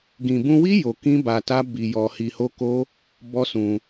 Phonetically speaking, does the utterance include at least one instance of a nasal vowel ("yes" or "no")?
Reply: yes